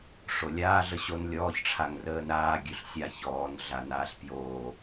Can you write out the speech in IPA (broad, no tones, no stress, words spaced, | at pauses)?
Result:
ʂolʲaː ɮəɕon lʲɔːçʈ͡ʂʰaŋ rəːnɾaː ɡʲʉɬsʲa çɔːnɮa naːɬpjoː